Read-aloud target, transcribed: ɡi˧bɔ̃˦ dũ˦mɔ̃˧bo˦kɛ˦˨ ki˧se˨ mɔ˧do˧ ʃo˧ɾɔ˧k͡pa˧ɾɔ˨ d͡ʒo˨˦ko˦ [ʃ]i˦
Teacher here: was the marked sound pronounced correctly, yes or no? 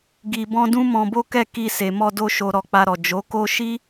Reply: yes